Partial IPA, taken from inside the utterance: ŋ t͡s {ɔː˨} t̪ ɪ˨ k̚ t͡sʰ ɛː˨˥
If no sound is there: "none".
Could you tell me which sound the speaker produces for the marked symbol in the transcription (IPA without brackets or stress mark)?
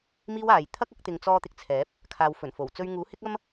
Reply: ɔː˧